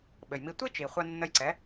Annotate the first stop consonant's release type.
implosive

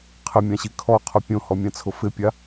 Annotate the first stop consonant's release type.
aspirated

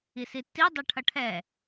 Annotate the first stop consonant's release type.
plain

